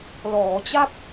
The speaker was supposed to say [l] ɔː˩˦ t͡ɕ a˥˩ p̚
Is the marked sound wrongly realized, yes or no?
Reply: no